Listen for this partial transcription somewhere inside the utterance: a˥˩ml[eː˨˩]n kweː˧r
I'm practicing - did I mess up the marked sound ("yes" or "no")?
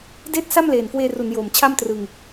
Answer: no